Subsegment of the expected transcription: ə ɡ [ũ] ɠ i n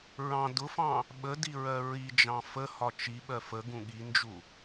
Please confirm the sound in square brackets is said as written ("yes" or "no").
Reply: yes